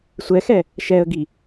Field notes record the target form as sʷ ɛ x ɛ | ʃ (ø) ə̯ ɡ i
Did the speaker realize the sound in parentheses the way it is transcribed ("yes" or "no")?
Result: no